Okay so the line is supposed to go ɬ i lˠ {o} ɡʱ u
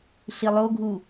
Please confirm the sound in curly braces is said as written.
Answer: yes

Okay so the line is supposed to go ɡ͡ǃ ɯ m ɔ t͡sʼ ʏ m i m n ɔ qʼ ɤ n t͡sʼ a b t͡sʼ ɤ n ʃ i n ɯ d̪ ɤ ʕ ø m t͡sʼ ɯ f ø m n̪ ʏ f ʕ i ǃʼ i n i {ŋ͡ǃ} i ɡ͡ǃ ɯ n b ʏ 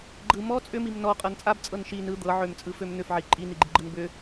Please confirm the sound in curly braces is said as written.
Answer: no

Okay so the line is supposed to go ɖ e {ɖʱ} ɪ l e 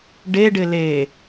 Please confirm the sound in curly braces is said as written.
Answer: no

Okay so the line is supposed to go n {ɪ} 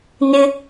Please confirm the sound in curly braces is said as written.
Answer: yes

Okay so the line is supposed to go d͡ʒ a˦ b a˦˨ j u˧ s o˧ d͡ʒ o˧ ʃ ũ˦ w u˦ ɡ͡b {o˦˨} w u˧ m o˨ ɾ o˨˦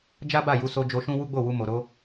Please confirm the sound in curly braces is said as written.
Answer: yes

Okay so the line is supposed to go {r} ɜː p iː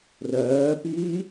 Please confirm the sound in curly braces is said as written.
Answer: yes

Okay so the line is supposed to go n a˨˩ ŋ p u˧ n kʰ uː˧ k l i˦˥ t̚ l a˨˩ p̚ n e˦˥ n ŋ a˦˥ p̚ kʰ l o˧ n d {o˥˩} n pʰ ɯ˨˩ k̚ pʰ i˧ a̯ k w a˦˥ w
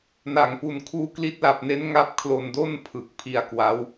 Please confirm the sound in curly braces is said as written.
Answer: yes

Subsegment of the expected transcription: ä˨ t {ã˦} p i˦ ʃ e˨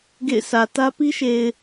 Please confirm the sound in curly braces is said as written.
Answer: no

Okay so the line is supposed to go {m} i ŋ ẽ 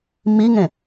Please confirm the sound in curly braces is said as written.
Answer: yes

